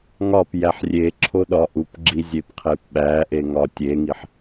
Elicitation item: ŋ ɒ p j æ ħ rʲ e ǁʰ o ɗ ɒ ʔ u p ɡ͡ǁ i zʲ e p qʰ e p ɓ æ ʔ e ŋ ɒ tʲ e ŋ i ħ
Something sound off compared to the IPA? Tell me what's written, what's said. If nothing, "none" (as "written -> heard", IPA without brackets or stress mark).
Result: none